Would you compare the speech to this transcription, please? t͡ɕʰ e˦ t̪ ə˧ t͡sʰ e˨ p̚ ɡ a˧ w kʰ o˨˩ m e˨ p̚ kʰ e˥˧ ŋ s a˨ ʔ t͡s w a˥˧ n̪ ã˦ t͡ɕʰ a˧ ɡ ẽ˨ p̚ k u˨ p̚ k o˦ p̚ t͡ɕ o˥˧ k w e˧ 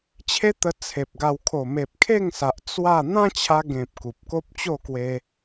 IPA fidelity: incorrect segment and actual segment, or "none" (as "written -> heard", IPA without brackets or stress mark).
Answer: none